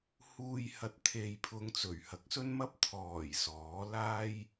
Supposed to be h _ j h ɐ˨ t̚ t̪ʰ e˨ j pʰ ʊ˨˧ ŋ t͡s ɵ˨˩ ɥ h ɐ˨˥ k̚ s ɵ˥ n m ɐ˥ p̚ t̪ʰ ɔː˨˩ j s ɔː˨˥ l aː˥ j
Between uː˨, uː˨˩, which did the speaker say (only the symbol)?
uː˨